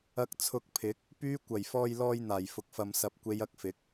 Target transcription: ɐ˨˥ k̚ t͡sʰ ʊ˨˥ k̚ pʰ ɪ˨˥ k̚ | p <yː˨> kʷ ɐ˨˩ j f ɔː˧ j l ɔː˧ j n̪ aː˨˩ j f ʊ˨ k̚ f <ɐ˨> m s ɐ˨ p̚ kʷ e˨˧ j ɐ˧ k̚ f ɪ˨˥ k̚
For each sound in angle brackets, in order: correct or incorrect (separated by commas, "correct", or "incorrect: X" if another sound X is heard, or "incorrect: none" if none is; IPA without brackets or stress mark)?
incorrect: yː˨˧, correct